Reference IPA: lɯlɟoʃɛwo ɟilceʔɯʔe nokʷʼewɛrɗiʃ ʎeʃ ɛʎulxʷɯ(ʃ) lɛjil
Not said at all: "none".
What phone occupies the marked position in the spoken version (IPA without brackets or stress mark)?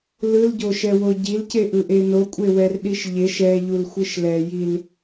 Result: ʃ